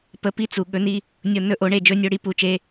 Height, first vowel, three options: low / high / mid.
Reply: mid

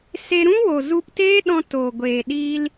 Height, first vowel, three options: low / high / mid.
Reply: mid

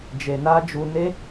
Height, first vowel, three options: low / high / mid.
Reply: mid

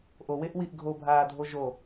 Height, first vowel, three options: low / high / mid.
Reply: mid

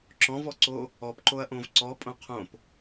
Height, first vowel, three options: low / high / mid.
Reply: mid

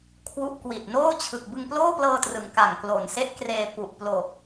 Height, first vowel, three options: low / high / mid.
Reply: high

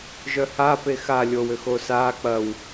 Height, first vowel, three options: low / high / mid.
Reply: mid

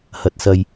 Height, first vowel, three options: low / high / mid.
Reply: low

